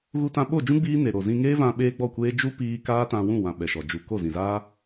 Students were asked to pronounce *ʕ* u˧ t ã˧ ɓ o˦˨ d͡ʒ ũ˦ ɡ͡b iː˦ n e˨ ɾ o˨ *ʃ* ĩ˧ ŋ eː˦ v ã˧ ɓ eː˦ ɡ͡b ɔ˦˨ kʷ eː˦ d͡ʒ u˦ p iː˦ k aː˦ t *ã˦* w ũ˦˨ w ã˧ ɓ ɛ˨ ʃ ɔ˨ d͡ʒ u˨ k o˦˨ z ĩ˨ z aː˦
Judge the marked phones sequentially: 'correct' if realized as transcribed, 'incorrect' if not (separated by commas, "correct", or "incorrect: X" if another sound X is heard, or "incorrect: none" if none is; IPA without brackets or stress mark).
incorrect: ɣ, incorrect: z, incorrect: ã˧